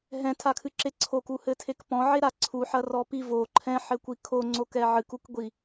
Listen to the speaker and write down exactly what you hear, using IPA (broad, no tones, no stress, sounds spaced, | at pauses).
ɦ ɛ̃ tʰ a kʰ ɨ ǁ e ǀʰ o k u h ɘ tʰ e k p ɔ̃ ʕ e ɾ a ǀʰ u ħ ɐ r ɔ p i v o ǃʰ ɛ̃ ħ ɘ kʷ i kʰ o ŋ͡ǀ o k ɛ ʕ ɨ k u k ɡʷ i